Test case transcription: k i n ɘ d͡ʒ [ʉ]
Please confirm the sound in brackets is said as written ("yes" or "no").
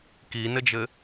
no